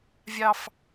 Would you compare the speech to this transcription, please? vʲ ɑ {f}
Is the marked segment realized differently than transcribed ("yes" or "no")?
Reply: no